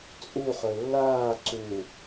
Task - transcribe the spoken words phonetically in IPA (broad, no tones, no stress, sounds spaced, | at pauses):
t͡sʼ u χ ɵ lː aː ǀ u